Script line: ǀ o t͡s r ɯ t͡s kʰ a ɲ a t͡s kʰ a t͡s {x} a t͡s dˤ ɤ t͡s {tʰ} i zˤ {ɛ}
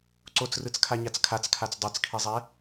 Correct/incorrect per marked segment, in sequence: incorrect, incorrect, correct

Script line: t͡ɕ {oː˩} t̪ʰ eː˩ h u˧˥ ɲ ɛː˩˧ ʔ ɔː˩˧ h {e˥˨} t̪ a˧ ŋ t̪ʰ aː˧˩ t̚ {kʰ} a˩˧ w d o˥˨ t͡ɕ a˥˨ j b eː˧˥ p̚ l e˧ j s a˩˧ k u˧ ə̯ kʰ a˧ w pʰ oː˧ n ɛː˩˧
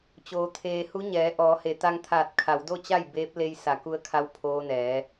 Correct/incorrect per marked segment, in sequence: correct, incorrect, correct

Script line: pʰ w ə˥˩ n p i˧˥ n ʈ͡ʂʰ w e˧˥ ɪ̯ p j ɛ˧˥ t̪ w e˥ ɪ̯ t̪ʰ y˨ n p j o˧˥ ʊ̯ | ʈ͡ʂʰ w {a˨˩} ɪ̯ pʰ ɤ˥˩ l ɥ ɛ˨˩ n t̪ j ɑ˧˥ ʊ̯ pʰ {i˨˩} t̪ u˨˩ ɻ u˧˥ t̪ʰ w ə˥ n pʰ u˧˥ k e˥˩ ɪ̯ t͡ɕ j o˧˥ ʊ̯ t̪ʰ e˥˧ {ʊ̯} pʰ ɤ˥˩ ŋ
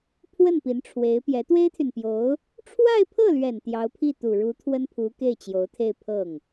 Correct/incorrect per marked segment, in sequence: incorrect, incorrect, incorrect

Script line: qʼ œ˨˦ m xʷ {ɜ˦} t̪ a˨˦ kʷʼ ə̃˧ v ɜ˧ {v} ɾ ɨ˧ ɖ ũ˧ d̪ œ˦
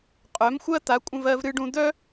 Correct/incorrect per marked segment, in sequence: correct, correct

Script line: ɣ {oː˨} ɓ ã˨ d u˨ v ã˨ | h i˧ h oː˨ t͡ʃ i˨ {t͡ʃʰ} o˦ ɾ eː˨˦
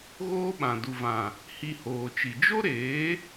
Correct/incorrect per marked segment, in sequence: incorrect, incorrect

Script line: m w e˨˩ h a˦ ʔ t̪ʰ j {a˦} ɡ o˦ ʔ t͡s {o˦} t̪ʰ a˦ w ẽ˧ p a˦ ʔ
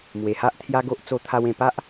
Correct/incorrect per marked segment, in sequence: correct, correct

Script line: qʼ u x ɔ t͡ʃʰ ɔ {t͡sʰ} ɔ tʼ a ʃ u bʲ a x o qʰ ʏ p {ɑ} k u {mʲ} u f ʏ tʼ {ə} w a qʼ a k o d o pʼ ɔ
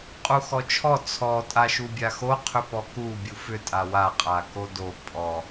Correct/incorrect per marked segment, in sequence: correct, incorrect, incorrect, incorrect

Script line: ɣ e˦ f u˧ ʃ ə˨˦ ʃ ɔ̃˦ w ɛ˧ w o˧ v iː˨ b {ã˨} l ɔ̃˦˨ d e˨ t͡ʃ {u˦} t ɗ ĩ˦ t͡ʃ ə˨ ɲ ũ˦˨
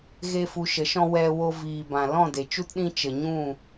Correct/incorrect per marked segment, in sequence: correct, correct

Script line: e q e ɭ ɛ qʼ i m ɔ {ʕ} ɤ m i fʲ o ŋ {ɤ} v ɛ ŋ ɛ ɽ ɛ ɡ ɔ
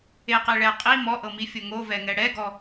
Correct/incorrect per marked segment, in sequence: incorrect, incorrect

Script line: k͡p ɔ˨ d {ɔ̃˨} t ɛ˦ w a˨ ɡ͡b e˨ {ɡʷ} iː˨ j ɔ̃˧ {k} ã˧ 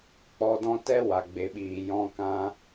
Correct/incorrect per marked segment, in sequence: incorrect, incorrect, correct

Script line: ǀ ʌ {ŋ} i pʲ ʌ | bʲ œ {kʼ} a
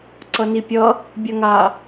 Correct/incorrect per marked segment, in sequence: incorrect, incorrect

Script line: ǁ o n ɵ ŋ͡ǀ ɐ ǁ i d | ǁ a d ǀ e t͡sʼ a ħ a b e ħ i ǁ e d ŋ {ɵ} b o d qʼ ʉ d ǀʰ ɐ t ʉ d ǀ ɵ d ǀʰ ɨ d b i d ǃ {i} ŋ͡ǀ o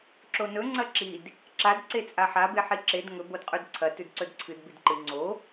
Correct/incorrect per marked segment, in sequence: correct, incorrect

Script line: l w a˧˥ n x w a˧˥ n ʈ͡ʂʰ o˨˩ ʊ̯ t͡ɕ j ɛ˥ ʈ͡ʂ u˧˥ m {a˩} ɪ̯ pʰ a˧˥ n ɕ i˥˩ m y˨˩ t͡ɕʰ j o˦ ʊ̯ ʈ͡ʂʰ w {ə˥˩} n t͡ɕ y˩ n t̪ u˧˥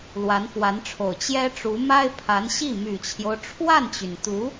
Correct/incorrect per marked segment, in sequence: incorrect, incorrect

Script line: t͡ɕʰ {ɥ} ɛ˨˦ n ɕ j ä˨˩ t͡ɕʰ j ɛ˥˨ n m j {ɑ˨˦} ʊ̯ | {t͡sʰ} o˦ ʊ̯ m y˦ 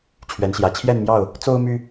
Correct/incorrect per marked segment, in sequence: correct, incorrect, incorrect

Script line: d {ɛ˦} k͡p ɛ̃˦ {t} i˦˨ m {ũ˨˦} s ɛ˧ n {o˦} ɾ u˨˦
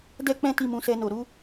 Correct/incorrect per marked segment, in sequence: correct, correct, correct, incorrect

